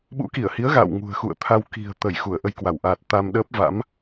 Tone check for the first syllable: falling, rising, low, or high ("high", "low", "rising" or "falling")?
rising